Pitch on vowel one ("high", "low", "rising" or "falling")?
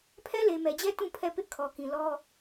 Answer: high